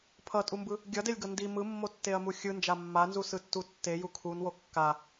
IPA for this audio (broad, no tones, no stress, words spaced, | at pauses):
pʰʌtʼumbɯ | ɡʲʌdelʲɡʌ ndi mɯmːotːeɐ̯mu xʲɯnd͡ʒa mːanzusɯtːu tːeju kʰunwo kːa